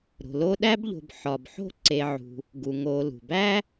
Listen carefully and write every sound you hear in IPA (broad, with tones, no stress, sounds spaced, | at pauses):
ɾ o̤˩ l o˦ ɗ æ˥ b ʎ o̤˨ b ħ ɒ˩ b ħ o̤˥ ǀ e˨ ʕ ṳ˩ | ɡ u˩ ŋ o˨ l ṳ˩ b æ˥